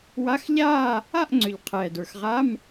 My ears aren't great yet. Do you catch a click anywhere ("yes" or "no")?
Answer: yes